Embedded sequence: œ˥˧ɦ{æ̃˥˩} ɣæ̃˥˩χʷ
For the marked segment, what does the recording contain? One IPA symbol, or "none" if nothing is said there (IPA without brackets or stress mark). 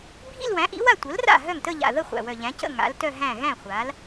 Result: æ̃˥˩